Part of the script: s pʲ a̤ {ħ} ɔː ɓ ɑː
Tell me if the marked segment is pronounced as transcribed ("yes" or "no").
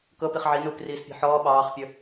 yes